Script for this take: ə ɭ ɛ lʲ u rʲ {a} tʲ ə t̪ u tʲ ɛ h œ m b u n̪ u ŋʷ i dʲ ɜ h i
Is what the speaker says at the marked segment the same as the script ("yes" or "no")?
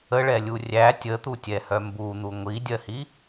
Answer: no